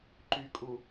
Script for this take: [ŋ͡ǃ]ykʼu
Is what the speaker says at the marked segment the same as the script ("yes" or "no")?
no